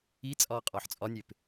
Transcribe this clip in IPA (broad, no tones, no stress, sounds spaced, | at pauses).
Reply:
i t͡sʼ ɒː qʼ ɒː ħ t͡sʼ ɒ nʲ e p